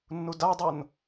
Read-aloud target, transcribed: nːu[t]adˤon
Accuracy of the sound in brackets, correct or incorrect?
incorrect